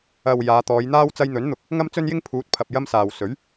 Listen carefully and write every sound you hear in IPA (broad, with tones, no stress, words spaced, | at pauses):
ɐ˨w jaː˨˧t̪ɔː˨˧jn̪aː˥w t͡sɐ˧jn̪ɵ˨˥nn̪ʊ˨˥k̚ | ŋɐ˥mt͡sɵ˥njɪ˥ŋ pʰuː˨˥t̚pʰɐ˨p̚ jɐ˥msaː˨w sɵ˨˥ɥ